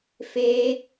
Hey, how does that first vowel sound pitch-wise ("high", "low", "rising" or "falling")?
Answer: high